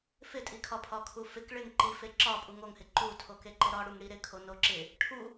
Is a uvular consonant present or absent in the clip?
absent